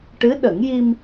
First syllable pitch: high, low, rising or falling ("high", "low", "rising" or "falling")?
rising